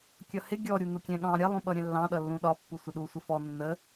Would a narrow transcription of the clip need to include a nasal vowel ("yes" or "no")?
yes